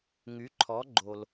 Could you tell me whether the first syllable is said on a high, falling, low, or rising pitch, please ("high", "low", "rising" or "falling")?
rising